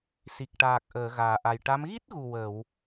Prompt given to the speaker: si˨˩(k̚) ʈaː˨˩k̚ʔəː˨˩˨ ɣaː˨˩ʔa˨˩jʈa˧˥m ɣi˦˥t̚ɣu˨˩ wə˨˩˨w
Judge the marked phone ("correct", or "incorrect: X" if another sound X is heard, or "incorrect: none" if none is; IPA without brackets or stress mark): correct